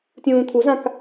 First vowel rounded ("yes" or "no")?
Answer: yes